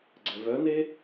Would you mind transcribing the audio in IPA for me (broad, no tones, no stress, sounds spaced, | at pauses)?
ɡ͡ǀ ɛ v œ n e